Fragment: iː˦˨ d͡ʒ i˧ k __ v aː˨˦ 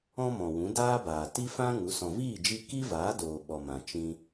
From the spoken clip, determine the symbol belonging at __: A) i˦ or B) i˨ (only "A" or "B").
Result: A